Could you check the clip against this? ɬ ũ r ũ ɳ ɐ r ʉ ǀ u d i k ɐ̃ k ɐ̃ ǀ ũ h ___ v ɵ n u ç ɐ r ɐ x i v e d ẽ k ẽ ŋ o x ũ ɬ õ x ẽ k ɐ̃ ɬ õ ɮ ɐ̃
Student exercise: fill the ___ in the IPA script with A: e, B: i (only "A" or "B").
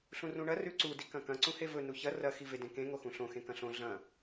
A